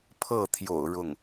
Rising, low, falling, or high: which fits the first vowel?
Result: falling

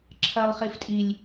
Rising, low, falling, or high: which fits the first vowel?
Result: low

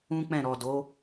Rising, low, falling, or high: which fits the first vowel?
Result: high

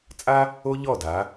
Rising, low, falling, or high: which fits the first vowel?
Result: high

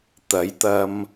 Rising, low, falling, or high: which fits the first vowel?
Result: rising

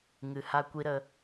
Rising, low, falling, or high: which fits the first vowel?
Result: low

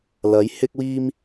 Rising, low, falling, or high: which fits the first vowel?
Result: rising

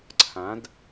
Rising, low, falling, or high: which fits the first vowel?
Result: rising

